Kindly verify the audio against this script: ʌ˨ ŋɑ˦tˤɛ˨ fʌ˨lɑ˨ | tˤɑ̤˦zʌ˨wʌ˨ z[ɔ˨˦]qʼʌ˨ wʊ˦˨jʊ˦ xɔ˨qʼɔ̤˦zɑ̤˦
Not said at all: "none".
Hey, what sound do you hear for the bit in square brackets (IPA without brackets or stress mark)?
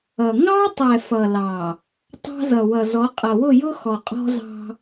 ɔ˨˦